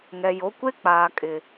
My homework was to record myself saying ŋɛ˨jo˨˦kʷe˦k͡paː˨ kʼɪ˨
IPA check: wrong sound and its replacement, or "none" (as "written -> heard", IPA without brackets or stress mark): none